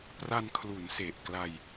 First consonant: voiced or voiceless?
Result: voiceless